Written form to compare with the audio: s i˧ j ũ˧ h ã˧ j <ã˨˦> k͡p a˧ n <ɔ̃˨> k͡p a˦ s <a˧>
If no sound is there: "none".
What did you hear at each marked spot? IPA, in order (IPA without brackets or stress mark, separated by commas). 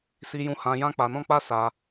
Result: ã˦, ɔ̃˦, a˧